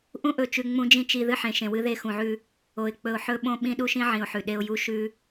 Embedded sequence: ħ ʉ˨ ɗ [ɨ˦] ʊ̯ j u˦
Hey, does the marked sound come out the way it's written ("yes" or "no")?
no